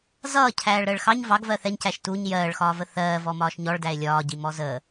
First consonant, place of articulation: alveolar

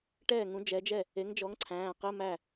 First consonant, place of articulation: retroflex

